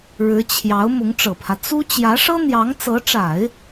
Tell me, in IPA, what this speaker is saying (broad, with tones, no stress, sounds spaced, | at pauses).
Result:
ɻ ɻ̩˧˥ t͡ɕʰ j ɑ˧˥ ʊ̯ m ʊ˧˥ ŋ ʈ͡ʂ ɤ˨˩ pʰ ä˦ t͡s u˥ t͡ɕ j ä˧˥ ʂ ɤ˥ n̪ j ɑ˧˥ ŋ t͡s ɤ˧˥ ʈ͡ʂ a˨˩˦ ɪ̯